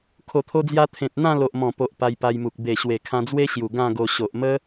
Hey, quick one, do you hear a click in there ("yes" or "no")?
no